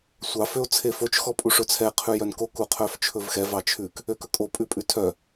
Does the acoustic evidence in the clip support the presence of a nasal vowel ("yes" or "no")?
no